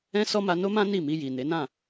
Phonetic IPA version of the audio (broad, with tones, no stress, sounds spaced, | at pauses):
ɛ̃˦ s ɔ˦ m a˧ n o˦ m ã˦ n i˦˨ m i˧ j i˨ n e˨˦ n ã˦˨